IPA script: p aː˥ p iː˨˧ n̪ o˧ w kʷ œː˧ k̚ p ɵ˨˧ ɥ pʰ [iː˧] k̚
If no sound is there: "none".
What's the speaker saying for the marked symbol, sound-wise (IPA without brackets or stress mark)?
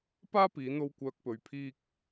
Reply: iː˧